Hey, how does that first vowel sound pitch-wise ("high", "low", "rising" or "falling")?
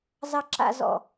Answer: low